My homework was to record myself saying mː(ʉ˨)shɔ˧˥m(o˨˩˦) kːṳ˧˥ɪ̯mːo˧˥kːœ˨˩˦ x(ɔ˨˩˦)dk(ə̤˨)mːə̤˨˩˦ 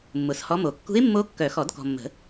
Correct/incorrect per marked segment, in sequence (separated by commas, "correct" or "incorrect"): incorrect, correct, correct, incorrect